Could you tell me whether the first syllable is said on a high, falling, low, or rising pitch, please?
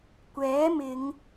rising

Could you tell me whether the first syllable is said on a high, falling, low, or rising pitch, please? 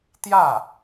falling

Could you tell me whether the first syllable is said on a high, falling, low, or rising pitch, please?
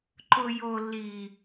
high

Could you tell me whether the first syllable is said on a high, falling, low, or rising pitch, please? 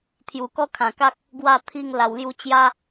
low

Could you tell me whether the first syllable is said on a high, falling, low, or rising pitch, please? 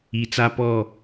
low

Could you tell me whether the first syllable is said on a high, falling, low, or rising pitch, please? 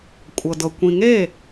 low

